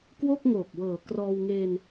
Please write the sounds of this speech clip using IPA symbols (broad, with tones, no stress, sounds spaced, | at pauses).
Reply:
k w o˥˩ k̚ ŋ oː˨˩ k̚ w ɤː˨˩ k r ɔː˧ w ŋ eː˧ n